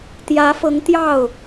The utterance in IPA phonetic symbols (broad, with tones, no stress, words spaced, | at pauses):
t̪jä˧˥fɤ˧˥ŋ t̪jɑ˥˩ʊ̯